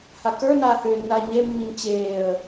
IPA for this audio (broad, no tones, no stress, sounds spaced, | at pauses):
h a k ə˞ n aː h ʏː nː aː ɲ e mː i ɲ t͡ɕ eː ə̯